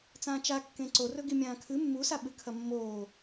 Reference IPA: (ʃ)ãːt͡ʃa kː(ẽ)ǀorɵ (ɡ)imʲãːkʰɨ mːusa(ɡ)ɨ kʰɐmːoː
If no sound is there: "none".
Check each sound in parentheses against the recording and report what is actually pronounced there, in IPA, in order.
t͡s, ẽ, ɡ, ɓ

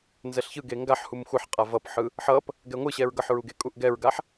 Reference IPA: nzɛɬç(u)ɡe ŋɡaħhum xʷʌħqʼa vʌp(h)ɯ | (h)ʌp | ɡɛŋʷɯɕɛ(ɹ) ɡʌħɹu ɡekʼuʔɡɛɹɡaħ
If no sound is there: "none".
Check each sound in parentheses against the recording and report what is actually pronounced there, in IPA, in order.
ɯ, ħ, ħ, ɹ

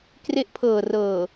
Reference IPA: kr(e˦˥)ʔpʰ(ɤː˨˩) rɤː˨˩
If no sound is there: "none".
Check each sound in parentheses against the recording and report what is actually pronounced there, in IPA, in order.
e˦˥, ɤː˨˩

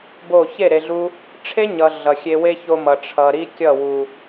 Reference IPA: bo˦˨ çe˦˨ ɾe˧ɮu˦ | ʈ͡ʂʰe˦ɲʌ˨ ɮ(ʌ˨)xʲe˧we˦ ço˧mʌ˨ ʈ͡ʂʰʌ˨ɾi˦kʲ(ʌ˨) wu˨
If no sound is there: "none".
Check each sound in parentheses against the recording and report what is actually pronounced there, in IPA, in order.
ʌ˨, ʌ˦˨

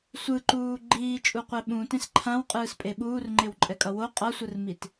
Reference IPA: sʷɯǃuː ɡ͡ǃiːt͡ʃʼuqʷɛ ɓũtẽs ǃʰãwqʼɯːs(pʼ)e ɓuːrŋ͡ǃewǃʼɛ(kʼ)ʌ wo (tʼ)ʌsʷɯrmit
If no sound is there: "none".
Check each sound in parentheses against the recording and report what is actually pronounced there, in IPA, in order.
pʼ, kʼ, qʼ

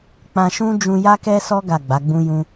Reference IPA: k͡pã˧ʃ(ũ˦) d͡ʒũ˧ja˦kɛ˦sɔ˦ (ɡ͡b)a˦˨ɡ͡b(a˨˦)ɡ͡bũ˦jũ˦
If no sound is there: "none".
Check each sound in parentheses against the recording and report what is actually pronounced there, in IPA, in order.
ũ˦, ɡ, a˨˦

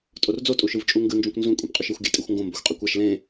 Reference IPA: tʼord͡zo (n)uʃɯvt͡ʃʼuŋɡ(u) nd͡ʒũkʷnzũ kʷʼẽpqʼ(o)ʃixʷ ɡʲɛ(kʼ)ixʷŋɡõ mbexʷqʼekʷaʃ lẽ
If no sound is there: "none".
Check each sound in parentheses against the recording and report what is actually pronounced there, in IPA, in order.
tʼ, ɯ, u, tʼ

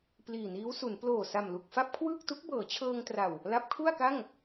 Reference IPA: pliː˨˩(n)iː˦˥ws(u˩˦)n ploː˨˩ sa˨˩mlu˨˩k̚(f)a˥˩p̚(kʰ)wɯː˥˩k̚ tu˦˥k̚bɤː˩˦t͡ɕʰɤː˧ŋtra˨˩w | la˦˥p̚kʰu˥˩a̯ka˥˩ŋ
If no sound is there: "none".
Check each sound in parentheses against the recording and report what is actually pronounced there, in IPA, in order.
n, u˩˦, f, kʰ

